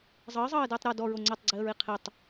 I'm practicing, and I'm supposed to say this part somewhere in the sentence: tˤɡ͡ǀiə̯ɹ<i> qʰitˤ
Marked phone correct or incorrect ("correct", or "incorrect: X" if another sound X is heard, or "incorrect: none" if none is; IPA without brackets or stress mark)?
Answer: correct